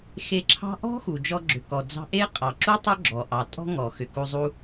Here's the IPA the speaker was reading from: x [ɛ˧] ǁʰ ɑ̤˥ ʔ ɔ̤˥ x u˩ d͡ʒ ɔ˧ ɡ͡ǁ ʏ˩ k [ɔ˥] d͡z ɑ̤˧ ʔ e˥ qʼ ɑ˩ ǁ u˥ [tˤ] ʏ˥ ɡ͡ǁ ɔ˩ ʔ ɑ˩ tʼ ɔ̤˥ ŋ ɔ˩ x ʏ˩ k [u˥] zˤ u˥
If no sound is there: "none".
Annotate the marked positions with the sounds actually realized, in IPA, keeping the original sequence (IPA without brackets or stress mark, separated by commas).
e˧, ɔ˩, tˤ, u˧